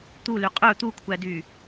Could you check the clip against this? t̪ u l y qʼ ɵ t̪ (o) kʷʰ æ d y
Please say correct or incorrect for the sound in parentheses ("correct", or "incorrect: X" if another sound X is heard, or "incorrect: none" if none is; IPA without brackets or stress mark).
incorrect: u